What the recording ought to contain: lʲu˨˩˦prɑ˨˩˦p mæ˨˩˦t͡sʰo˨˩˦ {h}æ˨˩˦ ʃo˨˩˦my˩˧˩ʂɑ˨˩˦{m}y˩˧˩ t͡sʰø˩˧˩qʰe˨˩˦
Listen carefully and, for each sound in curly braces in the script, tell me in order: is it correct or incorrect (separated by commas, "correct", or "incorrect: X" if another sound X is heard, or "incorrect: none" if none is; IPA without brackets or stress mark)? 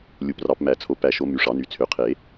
incorrect: p, incorrect: n